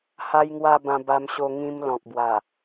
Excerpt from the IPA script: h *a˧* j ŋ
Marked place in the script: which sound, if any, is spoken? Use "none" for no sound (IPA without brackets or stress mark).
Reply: a˧